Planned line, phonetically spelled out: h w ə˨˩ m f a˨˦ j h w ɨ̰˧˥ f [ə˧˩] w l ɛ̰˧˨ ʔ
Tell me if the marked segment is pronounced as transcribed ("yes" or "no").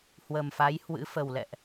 no